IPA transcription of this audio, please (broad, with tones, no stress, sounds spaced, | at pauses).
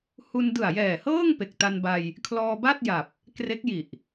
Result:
h u˧ n d ɯ˨˩ a̯ j ɛː˨˩ h ɤː˥˩ ŋ p e˨˩ k̚ t a˧ n b a˧ j | kʰ l ɔː˧ b a˥˩ t̚ j a˨˩ p̚ | k r e˦˥ k̚ j i˨˩ ʔ